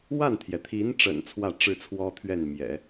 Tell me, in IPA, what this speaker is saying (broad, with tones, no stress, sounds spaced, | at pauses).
w a˥˩ n t̪ʰ j ɛ˩ t̪ʰ i˧˥ n ʈ͡ʂ ə̰˨˩ n t͡sʰ w ä˥˧ ʈ͡ʂ ɻ̩˥˩ t͡sʰ w ɔ˥ t̪ʰ ɥ ɛ˥˩ n m j ɛ̰˨˩˦